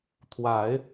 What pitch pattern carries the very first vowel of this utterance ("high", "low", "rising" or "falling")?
low